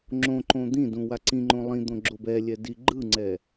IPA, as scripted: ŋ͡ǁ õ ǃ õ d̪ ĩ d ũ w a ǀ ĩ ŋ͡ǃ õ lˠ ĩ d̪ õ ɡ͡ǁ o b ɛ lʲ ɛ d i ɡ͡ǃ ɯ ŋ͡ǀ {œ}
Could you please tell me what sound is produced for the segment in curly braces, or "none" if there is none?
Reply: ɛ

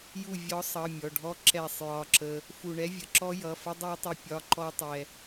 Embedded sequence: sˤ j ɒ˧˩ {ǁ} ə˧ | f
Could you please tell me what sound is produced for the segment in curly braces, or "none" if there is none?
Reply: ǁ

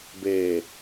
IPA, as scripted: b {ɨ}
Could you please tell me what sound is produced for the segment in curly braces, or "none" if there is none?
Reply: e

